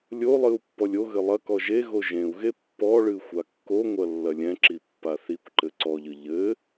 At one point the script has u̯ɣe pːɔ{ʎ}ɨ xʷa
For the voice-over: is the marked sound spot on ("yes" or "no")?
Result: no